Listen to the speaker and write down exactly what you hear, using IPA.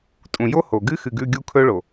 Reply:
tʼ ũ˨ j o˦ h o˨ ɡ ɨ˦ x ɨ˨ ɡ ʉ˦˨ ɡʲ u˦ kʰ ɵ˦ ɭ o˨

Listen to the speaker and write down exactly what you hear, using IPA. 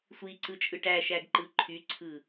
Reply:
sʷ i ǀ ɯ t͡ʃʼ ɯ ʈ æ ʃ æ ɡ ǃ ɯ ǃʰ y ǀʰ ɯ

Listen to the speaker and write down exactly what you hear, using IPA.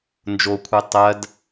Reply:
n d͡ʒ o kʷʰ ɛ tˤ ɜ d

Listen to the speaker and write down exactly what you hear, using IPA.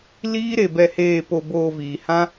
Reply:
l iː˦ ɾ e˧ b ɛ˧ h eː˧ p o˧ b oː˧ v iː˨ h ã˦

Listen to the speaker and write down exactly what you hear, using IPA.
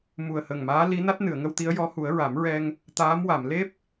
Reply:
m u˨˩ ə̯ h ə˨˩ ŋ m aː˧˥ l i˧˥ n a˦˥ t̚ n ɨ˨˩˨ ə̯ ŋ ə˧ w t̪ i˧˥ ə̯ j ɔ˧˥ h u˨˩˦ ə̯ ɹ a˨˩˦ m ɹ ɛ˧ ŋ | t̪ aː˧˥ m w a˨˩˨ m l e˦˥ p̚

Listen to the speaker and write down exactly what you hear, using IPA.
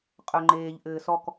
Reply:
qʼ œ ŋ͡ǃ eː ʎ ʔ ɘː s ɔ k

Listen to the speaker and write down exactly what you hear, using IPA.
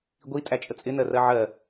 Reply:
ɡʷ i tʼ æ t͡ʃʼ ə t͡sʼ ɪ n ɜ r ɜ ʕ ɜ

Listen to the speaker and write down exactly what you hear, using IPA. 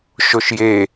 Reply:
ʃ o ʃ j e

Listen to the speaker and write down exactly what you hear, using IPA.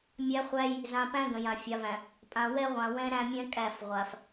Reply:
mʲ æ˦ χʷ æ˦ j | z ã˨ p æ̃˦ ɡ ə̃˨ j ã˨ fʲ a˨ v æ̃˨ | pʼ ã˨ w ɛ˦ ʁʷ ã˨ w ɛ̃˦ ɾ æ̃˦ mʲ ɛ̃˦ kʼ æ˦˨ f ʁʷ a˨ f

